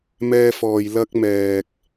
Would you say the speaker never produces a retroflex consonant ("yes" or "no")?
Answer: yes